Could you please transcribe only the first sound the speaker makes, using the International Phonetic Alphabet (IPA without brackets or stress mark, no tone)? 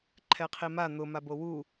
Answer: ǃʰ